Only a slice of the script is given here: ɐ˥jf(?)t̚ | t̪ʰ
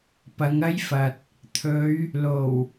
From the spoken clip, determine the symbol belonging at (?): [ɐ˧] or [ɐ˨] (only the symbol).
ɐ˨